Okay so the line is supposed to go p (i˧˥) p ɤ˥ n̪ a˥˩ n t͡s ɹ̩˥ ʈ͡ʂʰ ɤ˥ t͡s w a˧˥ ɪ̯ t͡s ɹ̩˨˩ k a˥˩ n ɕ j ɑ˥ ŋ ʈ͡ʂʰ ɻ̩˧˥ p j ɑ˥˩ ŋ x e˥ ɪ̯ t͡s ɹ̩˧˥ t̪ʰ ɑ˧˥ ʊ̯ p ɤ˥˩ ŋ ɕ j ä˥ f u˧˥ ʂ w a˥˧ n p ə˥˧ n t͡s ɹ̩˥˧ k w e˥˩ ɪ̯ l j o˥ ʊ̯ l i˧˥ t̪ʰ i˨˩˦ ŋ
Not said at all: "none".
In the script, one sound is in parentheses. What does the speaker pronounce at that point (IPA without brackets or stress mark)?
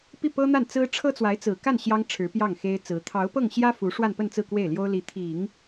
i˥˩